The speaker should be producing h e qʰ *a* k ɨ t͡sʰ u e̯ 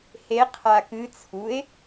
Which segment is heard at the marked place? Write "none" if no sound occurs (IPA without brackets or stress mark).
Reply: a